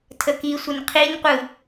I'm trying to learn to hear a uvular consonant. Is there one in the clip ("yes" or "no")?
yes